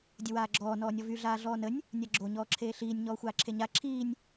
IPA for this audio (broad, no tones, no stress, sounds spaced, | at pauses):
dʲ ə w aː ɡ͡ǁ ɔː n ɔː nʲ ɔ v y ɮ aː ɮ ɔː n ə nʲ | nʲ a ɡ͡ǁ o ɲ ɔː ǁʰ eː ɬ iː nʲ ɲ ɔː xʷ aː ǁʰ e ɲ a ǁʰ iː nʲ